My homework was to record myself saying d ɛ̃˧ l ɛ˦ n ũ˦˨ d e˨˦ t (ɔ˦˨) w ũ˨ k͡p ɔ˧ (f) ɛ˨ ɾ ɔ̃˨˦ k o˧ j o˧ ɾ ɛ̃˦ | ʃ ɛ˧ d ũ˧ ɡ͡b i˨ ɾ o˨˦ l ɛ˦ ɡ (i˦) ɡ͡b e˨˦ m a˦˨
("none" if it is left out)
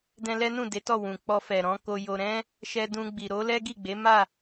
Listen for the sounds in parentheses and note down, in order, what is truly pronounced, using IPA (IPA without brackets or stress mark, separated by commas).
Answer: ɔ˦˨, f, i˦˨